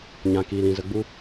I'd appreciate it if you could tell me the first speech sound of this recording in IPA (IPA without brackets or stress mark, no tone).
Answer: ɲ